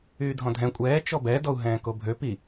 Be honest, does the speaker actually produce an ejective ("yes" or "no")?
yes